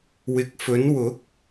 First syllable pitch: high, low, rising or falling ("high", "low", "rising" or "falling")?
low